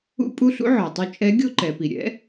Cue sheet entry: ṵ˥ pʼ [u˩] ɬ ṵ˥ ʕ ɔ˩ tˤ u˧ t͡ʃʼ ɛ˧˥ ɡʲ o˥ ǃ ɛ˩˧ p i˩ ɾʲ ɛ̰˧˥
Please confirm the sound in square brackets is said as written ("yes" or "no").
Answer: no